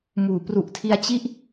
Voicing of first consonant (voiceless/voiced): voiced